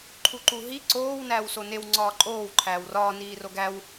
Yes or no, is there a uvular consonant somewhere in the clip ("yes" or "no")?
no